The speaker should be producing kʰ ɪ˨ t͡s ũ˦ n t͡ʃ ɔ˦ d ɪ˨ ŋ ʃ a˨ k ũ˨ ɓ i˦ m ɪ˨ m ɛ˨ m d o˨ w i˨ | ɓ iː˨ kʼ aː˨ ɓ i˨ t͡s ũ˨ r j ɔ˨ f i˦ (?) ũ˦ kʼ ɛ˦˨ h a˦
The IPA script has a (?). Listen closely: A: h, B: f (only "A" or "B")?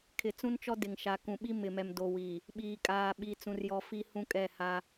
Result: A